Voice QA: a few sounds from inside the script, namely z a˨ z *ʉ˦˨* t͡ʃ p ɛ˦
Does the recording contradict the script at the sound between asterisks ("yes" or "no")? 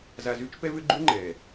yes